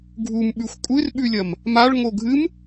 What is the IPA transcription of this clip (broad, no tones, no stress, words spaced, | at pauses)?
ɡʱumɓʉxʷ kʷʼɨrɓʉlʲɐm | maɭ ŋoɡʱɨm